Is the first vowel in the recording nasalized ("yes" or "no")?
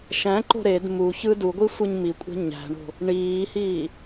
yes